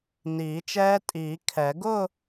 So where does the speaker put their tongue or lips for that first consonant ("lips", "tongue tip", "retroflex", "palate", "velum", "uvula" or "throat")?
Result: tongue tip